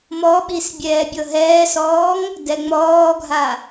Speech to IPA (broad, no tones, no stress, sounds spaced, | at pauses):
m ɔ ɓ i s bʲ ɛː bʲ ɤ ɦ ɛː s ɔː ŋ | d ɛ ŋ͡m ɔː ɡʱ a